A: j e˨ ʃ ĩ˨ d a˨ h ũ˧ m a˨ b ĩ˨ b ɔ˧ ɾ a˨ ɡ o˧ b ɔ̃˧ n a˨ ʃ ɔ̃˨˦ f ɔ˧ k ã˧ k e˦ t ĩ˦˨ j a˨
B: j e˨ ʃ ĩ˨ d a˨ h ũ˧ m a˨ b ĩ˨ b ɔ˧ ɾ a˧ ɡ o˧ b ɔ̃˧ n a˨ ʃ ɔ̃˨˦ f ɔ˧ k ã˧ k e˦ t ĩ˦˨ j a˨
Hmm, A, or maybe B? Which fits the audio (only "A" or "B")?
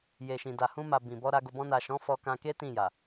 B